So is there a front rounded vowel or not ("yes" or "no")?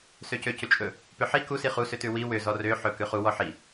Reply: yes